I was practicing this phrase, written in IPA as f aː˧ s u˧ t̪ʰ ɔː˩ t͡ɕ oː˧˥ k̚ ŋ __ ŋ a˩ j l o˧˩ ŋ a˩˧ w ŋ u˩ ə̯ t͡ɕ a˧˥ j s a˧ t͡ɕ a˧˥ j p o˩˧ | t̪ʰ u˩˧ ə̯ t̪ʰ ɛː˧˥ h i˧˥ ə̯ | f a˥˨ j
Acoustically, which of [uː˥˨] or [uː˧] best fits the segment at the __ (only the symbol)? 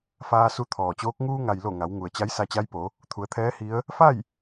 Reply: uː˧